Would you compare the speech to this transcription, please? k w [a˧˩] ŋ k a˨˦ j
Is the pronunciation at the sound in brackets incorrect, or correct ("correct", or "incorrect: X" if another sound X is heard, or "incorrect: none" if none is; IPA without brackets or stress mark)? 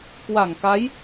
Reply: correct